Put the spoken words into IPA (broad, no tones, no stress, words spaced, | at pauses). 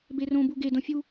berõbu ɡedõ fʲu